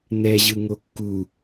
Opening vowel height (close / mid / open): mid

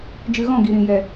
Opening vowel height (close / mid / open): close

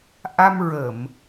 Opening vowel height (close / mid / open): open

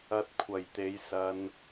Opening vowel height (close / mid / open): open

